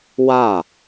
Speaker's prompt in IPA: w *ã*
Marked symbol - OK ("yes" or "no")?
no